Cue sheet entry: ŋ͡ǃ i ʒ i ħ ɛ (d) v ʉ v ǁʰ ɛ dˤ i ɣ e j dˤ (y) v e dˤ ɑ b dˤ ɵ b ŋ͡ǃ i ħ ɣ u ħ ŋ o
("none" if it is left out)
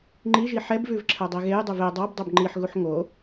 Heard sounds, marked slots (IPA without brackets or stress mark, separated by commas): b, y